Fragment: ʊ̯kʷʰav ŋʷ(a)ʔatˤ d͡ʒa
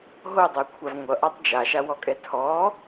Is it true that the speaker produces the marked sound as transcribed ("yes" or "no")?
no